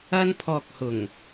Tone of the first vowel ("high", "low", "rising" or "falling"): high